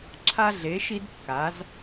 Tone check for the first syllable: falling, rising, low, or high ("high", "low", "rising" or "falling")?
high